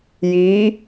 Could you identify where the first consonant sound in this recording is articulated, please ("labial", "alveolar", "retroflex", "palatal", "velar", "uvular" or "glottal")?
palatal